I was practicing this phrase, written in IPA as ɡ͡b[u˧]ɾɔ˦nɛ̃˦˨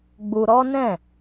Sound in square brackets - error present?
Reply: no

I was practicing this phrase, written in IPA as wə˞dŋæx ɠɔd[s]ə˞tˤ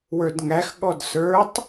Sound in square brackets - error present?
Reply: no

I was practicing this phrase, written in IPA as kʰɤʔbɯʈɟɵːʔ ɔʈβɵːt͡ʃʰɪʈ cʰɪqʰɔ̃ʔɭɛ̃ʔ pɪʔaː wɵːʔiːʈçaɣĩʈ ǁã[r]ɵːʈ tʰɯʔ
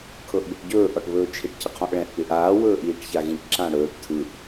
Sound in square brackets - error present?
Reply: yes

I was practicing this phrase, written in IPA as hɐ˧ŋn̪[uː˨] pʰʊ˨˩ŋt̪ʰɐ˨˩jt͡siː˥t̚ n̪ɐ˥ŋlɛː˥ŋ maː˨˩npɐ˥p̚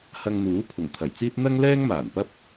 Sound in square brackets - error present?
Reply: yes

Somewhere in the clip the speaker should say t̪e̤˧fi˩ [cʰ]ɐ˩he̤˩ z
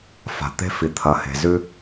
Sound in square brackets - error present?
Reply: yes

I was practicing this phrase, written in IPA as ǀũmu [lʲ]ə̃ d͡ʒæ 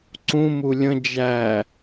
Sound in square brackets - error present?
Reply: no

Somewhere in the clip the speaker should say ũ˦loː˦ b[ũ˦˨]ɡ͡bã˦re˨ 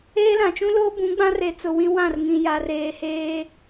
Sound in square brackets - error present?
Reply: yes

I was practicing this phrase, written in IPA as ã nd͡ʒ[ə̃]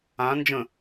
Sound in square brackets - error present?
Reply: no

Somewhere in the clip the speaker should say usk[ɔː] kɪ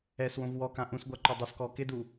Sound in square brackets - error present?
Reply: no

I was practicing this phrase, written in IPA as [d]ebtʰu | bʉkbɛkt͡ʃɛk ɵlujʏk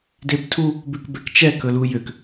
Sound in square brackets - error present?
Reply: no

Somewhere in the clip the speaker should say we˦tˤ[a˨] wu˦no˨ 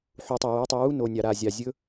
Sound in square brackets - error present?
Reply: yes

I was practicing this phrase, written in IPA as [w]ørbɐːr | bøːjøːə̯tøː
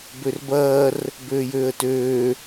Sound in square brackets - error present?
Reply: yes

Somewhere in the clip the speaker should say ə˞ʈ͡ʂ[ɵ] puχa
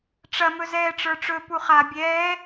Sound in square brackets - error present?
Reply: no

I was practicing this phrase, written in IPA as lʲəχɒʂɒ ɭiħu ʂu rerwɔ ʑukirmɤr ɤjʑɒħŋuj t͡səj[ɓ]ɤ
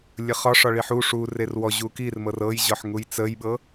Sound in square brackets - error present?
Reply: no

